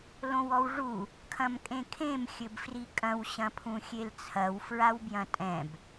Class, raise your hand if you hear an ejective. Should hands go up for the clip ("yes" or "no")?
yes